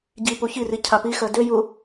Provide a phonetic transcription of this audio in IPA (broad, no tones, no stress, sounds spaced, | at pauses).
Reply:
ɟ i p u ç i r i cʰ a p i x ɜ d ø j u